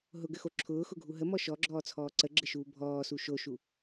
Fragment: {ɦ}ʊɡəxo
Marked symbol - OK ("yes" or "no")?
yes